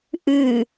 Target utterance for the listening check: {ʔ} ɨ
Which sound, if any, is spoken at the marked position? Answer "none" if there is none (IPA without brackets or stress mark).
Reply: ʔ